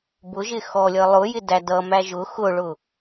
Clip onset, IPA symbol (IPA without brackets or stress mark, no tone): b